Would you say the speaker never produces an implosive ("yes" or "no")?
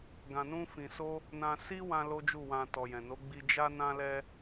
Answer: yes